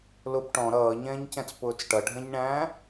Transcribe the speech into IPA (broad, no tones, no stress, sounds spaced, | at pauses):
l ʊ p ʈ ɔ̃ ɾ ʌː ɲ ɛ̃ː ɲ c ɛ̃ t͡s p ʊː t͡s ʈ ʌ ɖʱ ɛ̃ ɲ ɳ æ̃ː